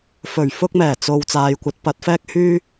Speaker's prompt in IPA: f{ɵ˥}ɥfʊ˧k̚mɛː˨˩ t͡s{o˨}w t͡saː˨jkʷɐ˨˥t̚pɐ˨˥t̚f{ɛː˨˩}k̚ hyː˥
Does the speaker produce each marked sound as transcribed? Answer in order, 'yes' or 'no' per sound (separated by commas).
no, yes, no